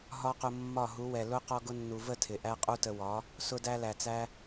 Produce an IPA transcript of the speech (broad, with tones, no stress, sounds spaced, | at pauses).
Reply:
ɦ ɒ˦ q ʊ˧ mː ɒ˦˨ ɦ u˨˦ w ɛ˨ l ʊ˦ q ɔ˧ ɡ ʊ˧ nː u˨ v ə˦˨ tʰ ɪ˨ ʔ æ˦ qʼ u˦ t ə˧ w ɒ˨˦ | s ʊ˧ d æ˧ l æ˨ t͡s æ˧